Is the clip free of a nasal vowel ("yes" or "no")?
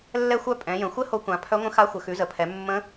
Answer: no